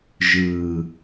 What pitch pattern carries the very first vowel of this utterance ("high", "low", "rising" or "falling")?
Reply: low